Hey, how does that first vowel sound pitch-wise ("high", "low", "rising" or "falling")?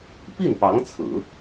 falling